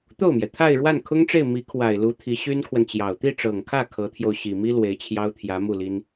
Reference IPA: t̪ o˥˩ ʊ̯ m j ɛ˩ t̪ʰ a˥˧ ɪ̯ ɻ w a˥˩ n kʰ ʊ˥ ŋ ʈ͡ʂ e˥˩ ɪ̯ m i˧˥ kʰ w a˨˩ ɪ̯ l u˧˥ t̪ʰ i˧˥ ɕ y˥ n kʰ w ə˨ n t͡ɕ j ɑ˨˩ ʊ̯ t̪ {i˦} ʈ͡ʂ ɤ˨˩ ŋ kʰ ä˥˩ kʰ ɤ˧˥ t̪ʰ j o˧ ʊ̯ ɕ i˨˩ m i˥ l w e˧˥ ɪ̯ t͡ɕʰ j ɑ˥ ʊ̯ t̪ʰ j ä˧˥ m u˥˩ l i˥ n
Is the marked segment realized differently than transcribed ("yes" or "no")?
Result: yes